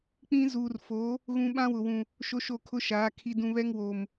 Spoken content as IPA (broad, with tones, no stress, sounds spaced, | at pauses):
k͡p ĩ˦ z uː˨ r f oː˨˦ | ɣ ũ˦ ɓ ã˦ w ʊ˨ w ũ˨ | ʃ o˦ ʃ o˦˨ kʰ ʊ˦ ʃ aː˨˦ kʰ i˨ d ũ˨ β ɛ˦ ŋ w oː˨ m